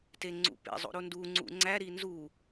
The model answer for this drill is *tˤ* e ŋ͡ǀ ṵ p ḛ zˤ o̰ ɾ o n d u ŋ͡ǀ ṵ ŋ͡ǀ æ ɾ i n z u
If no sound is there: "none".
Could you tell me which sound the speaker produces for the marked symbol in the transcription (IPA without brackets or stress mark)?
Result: t